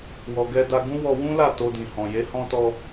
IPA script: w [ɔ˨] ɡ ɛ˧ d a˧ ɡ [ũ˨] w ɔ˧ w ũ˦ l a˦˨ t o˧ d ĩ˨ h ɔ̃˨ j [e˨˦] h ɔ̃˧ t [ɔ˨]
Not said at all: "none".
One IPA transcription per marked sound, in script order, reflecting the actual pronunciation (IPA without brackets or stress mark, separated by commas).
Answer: ɔ˨, ũ˦, e˨˦, ɔ˧